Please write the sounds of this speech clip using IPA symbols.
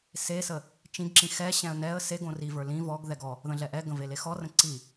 sesə | t͡ʃĩɡǁĩ xɛɕɛ̃ə̯ nɛə̯ se ɡõrivə˞ lĩ vɔɡðɛɡ ɔ | ðə̃ɮɛʔɛɡə̃ velexɔrə̃ ǀi

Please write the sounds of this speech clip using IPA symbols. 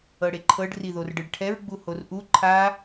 ɤɽeǃʰɤɖ riðorɖɯɖʈʰɛɹ ɡ͡buhorʔu ǃʰa

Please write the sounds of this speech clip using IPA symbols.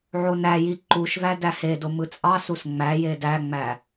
ʕonæji ǃuʃvæ dæhedo mɯt͡sʼɑsus ŋ͡mæje dæŋ͡mæ

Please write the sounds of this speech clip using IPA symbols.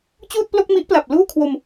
t͡ɕuː˥˩t̚plo˥˩k̚mi˦˥ʔpla˨˩p̚ luː˥˩kʰwo˧m

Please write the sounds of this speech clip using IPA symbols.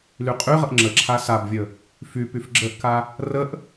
lyqʼyʁəʔ ŋ͡ǁəǁʰa sabvʲə | fypyf ɡ͡ǁəʔka | rəʔ

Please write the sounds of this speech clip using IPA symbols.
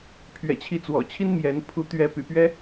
pʰɥɛ̰˨˩t͡ɕʰi˨˦t͡swɔ̰˨˩t͡ɕʰi˦n mjɛ˨˦n pʰu˨˦t̪ɥɛ˨˦py̰˨˩pɥɛ˦

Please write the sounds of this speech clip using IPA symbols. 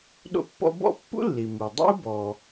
ɗo̰˥pːɔ̰˥ bɔ̰˥ pːṵ˥lːi˩ mu˩ dˤo̰˥u̯bɔ˩

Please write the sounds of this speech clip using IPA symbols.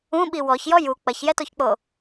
ũɓi wɔçjɔ ju k͡pɐçjɛtoçk͡po

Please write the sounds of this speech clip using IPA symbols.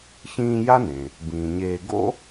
çĩː˦ja˥nẽ˩ | bĩː˩ɲeː˨ɡo̰˥

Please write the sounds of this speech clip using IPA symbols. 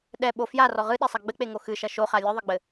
ɗɛɓo fjarɔ ʁɨɗesˤɐ ɡ͡bɘk͡peŋo xɨʃɐ ʃoχa lʲɨðˤɨɡ͡bɘ

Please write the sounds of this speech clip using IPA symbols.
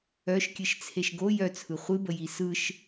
œʃkʲɨʃt͡sʰeʃ ɡo jœt͡sʰɯ χʷɨbəji sɯʃ

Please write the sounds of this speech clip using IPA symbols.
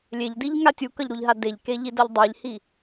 lʲeʎdiʎŋa tʲukʌʎɾuʎɦa deʎkeʎidʌʎ dˤeʎhi

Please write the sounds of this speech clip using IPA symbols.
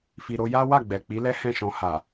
fi˨ɾo˧ ja˦wa˦˨ ɡ͡bɛ˨ k͡pi˨˦lɛ˦ hɛ̃˦˨ʃɔ̃˧ ha˨

